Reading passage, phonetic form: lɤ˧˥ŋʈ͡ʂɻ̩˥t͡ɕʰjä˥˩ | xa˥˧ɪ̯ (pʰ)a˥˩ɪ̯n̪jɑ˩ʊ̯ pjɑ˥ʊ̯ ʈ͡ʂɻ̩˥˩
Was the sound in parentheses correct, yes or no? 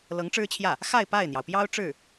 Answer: no